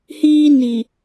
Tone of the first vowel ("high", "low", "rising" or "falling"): high